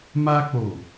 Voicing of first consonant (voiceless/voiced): voiced